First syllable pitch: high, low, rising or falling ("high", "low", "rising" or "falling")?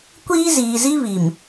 high